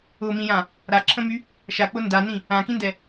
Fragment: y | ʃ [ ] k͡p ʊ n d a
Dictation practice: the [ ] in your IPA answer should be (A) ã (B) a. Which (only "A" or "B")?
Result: B